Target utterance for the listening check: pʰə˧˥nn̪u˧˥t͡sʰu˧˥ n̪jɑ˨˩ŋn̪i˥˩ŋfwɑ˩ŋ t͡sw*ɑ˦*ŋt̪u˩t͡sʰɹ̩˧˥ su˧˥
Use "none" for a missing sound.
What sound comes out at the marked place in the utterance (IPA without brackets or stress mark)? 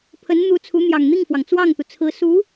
ɑ˥˩